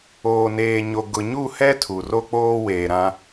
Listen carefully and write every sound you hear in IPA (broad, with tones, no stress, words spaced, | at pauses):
oː˨neː˨ɲo˨ ɡʊ˨ɲu˦˨hɛ˦ tʰu˨ro˦k͡poː˦ weː˨ɾã˦